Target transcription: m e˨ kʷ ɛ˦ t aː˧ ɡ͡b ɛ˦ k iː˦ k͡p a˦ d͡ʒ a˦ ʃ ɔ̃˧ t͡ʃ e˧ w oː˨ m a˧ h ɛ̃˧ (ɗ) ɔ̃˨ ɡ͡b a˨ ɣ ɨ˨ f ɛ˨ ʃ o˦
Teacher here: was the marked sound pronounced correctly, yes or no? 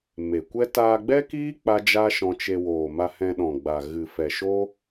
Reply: yes